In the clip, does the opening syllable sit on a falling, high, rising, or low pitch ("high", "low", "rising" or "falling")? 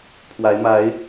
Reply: rising